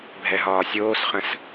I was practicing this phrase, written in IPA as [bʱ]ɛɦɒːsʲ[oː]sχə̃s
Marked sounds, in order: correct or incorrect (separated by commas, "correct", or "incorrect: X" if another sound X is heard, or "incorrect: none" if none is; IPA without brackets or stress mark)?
correct, correct